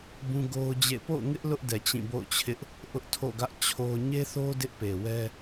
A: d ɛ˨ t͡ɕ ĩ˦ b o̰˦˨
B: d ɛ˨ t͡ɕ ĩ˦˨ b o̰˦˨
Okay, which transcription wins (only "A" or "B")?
B